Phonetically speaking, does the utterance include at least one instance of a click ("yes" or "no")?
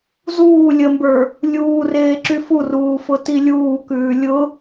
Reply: yes